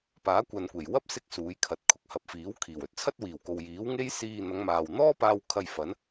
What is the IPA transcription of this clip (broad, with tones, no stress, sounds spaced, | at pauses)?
p aː˨˥ kʷ ɐ˨ n kʷ e˨˩ j w ɐ˥ p̚ s ɪ˧ k̚ s uː˨˧ j kʰ ɐ˨ t̚ kʰ ʊ˨˥ k̚ h ɐ˨ p̚ f iː˨˥ w kʰ iː˨˩ w ɵ˨˥ t̚ t͡sʰ ɐ˥ t̚ w iː˨˩ w k o˨ w j iː˨˥ w ŋ e˥ j s iː˧ n̪ ɐ˨˧ ŋ m aː˨ w n̪ ɔː˥ p aː˧ w kʰ ɐ˧ j f ɐ˨˥ n